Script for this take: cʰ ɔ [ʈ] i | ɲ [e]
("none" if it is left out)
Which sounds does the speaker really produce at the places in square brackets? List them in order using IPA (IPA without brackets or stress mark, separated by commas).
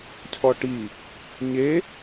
ʈ, e